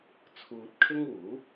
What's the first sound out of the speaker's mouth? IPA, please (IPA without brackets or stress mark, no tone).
t͡sʰ